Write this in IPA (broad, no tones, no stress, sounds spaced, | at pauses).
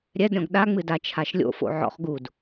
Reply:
ɾʲ ɛ d ɾʲ ɔ̃ ɡ ɗ a ŋ͡m ɨ d a t͡ʃʰ a ʃ lʲ o̰ f o̰ ʕ ɔ̰ χ ɡ u d